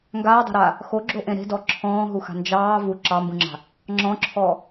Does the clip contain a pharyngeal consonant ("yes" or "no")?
no